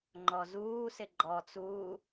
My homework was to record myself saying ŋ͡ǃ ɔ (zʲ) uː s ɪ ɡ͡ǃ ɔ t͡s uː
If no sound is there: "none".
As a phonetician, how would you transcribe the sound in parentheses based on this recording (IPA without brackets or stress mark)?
z